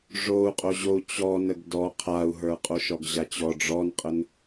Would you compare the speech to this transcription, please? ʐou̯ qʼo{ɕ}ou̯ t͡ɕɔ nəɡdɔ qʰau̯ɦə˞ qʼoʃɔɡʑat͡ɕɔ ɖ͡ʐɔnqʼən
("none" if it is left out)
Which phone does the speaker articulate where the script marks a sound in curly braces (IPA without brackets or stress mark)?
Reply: ʑ